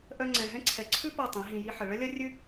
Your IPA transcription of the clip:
ʔ œ˧ ŋ͡ǀ ɛ̃˨ ɦ ɛ̃˦ ǀʰ ɛ˨ ǀʰ ʉ˦ p ɤ˦˨ tˤ ĩ˨˦ ɦ ĩ˧ j i˧ ħ ə˨ ɭ ə˦ lʲ ɐ˦ rʲ ʉ˦

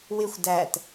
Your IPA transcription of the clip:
w ɪ xʷ d æ t

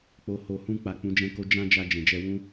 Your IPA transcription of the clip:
k͡p o˨ h o˨ h ũ˧ k͡p a˨ k͡p ũ˨˦ d͡ʒ ɛ̃˦ k o˦ d͡ʒ ã˦ d͡ʒ a˧ d͡ʒ ɛ̃˨ d͡ʒ ɛ˧ w ũ˦

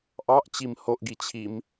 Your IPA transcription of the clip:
ʔ ɑ ʔ t͡ɕ i m h o ʔ ɡ i t͡ɕʰ i m

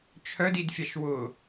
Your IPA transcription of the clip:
t͡ʃʰ œ d i d fʲ a ʃ w ʊ

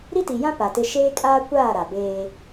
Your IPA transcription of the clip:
ɾ i˦ t i˨ j ã˦ p a˨ t ɪ˦ ʃ eː˦ kʼ aː˦ kʷ aː˦˨ ɾ a˨ b eː˦

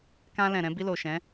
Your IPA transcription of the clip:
k ã˧ l ɛ̃˨ ɾ ɛ̃˧ b i˧ l o˨ ʃ ɛ̃˨˦

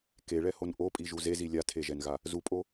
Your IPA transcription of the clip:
k e ɭ ɛ h o n ʔ o pʼ i ʒ u z e z i lʲ a tʰ e ʒ ɛ n ɣ a | z u pʼ o

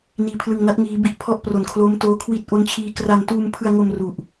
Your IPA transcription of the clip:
n iː˧ pʰ l ɯ˧ ŋ n a˦˥ t̚ ŋ iː˦˥ b i˥˩ ʔ pʰ ɔ˦˥ ʔ p r o˨˩ n kʰ l o˦˥ m t oː˦˥ kʰ w i˥˩ t̚ ʔ o˦˥ n t͡ɕʰ iː˧ k r a˧ n t uː˧ m pʰ ɯ˧ a̯ ŋ o˧ m r u˨˩ ʔ

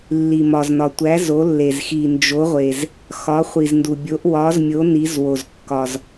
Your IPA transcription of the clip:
lː i˨ m ɒ˨ z n ɒ˨ tʷ æ˨˥ z o˨˥ lː e˨ z x i˨ n d͡ʒ o˨˥ ʁʷ e˨ z | x ɒ˨˥ χʷ i˨ z n d u˨ bʲ o˨˥ ʔ w ɒ˨˥ z mʲ o˨˥ n i˨˥ z w o˨ z kː ɒ˨ z

